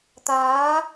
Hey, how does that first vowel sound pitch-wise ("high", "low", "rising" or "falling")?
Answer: rising